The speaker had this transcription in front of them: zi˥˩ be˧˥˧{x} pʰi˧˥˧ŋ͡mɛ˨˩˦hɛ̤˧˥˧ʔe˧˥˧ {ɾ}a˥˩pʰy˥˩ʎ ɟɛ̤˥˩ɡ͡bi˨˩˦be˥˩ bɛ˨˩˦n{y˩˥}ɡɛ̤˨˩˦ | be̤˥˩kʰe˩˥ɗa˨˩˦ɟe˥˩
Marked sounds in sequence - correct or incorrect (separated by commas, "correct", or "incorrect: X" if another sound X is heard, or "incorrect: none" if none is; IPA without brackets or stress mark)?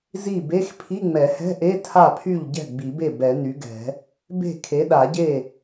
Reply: correct, incorrect: tʰ, correct